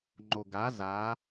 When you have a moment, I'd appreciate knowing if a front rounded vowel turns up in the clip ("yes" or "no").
no